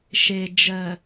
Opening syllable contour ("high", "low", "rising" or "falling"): low